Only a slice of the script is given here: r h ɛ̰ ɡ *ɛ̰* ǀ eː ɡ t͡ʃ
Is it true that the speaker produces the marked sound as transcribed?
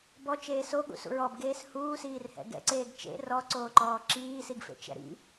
yes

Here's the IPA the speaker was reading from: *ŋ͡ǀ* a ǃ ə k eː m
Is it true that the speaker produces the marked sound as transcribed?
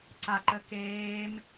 no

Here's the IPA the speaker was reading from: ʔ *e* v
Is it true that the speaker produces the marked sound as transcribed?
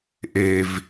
yes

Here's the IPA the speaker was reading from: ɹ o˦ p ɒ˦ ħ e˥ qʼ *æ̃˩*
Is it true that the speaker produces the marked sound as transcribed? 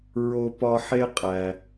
no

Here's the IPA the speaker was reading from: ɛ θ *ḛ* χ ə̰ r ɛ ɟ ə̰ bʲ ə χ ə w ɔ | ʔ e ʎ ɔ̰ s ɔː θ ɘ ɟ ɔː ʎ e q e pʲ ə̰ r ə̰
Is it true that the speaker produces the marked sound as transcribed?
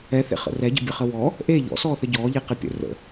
yes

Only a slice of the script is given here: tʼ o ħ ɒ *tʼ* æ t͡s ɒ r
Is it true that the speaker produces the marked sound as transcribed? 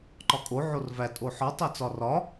no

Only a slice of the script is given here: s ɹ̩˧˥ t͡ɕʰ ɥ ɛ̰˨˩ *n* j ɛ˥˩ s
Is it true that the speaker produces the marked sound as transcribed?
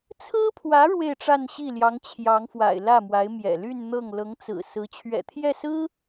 no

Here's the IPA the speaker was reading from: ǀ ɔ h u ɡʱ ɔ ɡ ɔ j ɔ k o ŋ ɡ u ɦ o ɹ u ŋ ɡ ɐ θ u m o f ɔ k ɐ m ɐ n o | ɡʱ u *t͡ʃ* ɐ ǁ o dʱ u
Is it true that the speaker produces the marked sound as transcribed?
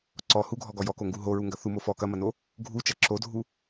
yes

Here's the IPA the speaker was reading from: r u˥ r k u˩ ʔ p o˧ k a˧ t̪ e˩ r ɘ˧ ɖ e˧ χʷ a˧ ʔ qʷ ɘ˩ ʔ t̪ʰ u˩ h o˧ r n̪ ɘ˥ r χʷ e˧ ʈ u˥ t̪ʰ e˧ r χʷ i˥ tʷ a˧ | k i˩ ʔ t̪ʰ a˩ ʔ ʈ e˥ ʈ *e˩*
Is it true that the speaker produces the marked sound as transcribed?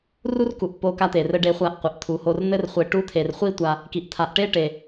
yes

